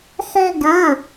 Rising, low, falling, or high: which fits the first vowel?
high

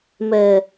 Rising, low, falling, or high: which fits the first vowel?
low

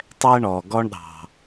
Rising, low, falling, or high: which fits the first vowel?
high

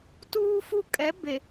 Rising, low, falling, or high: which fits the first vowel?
high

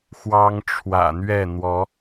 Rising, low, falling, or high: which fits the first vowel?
high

